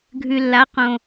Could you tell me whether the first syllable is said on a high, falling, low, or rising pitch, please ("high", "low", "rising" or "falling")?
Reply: low